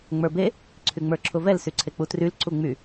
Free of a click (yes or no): no